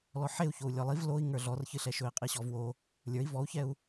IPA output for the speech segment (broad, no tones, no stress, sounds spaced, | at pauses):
l ɔ ħ e u̯ ç o u̯ lʲ ɔ lˠ i v l o i̯ ŋ ə˞ ɮ ɔ r ç ɨ ɬ ɛ ʃ ɵ i̯ qʼ i ɕ ɔ v w o | lʲ ə˞ i̯ v ɔ u̯ ç ɛ u̯